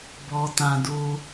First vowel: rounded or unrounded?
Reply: rounded